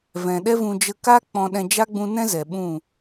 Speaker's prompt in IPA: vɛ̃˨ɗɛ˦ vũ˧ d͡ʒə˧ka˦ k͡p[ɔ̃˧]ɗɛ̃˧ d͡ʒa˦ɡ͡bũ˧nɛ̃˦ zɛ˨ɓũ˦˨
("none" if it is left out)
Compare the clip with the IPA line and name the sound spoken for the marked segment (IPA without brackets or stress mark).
ɔ̃˧